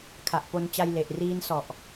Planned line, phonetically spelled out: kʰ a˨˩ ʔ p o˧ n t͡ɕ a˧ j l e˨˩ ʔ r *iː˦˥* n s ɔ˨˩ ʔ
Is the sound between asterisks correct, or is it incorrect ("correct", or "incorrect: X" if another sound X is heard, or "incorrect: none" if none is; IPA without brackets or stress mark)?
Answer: correct